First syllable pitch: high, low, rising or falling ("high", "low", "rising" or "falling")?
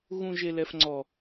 low